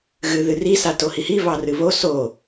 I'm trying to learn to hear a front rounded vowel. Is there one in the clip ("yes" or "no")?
no